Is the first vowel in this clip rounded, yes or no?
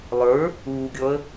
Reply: no